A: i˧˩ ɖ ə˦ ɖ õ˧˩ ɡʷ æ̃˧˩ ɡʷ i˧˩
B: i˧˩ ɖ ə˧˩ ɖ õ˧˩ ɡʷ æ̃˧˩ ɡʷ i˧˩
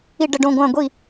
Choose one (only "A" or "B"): B